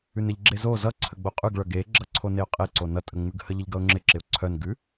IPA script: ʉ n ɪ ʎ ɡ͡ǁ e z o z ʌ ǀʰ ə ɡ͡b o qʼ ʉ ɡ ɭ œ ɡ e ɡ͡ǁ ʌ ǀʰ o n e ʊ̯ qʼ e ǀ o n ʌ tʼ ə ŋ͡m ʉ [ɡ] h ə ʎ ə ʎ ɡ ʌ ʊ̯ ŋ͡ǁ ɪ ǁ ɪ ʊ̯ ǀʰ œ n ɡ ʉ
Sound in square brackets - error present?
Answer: no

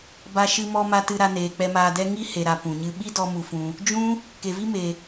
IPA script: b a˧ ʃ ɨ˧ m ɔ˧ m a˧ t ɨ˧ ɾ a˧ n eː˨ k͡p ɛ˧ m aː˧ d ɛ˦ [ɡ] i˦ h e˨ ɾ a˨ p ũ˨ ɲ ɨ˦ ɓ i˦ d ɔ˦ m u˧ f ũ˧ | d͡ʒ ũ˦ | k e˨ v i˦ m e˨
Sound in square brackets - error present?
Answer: yes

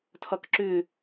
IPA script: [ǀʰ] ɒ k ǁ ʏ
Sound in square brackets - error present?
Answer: yes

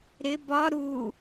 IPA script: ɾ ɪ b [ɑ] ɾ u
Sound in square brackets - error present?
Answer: yes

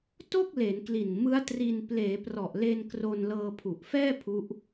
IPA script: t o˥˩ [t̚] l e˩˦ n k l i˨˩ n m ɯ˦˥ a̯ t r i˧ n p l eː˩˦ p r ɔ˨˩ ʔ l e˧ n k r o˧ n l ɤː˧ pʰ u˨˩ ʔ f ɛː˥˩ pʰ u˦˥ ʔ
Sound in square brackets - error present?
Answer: yes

